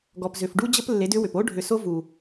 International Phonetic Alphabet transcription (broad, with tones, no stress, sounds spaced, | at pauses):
ɡ ɔ˨ p z ʏ˨ f ɖ u˦ d͡ʑ ə˦ p lː e˨˦ d ʏ˦ w ʏ˨ p o˦ ɖʱ ʏ˨ s o˦ v u˨